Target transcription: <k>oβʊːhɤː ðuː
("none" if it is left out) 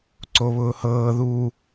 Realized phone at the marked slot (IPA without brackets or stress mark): ǀ